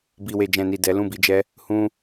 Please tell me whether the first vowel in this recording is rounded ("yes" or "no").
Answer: no